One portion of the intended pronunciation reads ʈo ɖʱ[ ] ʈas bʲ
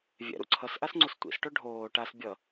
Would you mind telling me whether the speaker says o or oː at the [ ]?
oː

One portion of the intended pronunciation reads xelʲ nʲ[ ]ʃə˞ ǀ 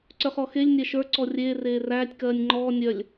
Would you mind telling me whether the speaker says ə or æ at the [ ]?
æ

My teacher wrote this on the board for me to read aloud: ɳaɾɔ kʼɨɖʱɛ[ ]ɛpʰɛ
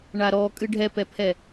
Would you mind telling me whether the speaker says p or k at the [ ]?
p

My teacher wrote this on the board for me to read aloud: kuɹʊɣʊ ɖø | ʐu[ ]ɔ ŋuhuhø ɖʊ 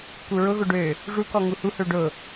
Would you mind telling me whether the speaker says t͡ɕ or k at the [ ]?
k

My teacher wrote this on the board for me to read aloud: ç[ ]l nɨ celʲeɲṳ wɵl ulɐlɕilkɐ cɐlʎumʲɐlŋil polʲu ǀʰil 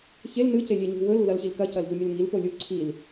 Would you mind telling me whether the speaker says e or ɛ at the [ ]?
e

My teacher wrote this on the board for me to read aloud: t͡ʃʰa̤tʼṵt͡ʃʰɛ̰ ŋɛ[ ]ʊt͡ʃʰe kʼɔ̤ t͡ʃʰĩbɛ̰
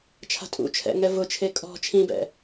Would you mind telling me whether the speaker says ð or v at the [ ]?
v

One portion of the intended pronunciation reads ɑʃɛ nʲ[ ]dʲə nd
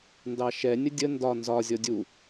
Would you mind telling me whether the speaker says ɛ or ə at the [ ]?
ə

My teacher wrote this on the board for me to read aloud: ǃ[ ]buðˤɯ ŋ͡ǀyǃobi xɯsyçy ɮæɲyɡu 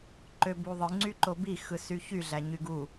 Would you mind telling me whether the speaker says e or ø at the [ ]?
ø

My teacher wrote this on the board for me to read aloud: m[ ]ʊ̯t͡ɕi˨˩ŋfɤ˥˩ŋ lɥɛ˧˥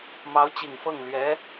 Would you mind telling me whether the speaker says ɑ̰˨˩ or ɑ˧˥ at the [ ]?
ɑ˧˥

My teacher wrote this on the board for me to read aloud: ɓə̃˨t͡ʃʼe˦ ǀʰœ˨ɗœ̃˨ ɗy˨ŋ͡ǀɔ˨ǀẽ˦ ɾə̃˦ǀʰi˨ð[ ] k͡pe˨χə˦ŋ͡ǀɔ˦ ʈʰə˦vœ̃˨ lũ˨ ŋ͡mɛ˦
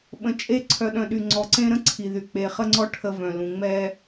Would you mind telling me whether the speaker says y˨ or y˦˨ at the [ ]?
y˨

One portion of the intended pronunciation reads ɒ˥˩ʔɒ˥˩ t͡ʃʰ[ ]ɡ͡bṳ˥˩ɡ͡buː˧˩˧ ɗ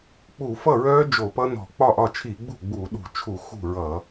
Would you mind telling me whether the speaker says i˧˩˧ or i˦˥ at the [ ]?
i˧˩˧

